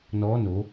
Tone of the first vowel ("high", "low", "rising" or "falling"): rising